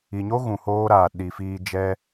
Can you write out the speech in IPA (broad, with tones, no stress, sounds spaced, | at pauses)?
i˨ ɲ o˦ ɣ ũ˨ h oː˧ ɾ aː˨ ɗ i˨ f iː˧ d͡ʒ ɛ˧